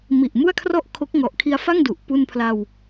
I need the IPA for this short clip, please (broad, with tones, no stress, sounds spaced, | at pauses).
m i˨˩ ʔ m u˥˩ a̯ kʰ r ɔ˥˩ ʔ kʰ o˦˥ k̚ ŋ ɔ˨˩ ʔ kʰ i˧ a̯ f a˥˩ ŋ d u˨˩ ʔ p u˧ n pʰ l a˧ w